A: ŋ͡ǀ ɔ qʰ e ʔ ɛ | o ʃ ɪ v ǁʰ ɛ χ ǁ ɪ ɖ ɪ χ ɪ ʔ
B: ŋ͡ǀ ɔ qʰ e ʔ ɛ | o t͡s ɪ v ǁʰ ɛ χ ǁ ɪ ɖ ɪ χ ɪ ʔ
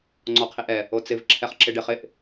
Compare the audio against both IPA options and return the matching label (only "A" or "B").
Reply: B